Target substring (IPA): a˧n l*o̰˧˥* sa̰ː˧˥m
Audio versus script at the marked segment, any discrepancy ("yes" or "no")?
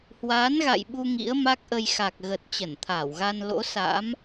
no